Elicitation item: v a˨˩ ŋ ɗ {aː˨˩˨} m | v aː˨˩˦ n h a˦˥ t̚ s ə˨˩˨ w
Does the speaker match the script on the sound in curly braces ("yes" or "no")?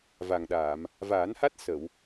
yes